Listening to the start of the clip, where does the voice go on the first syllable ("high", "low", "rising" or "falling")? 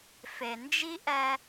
low